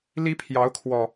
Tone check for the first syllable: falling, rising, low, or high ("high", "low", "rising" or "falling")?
high